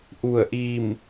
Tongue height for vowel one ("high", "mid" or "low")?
high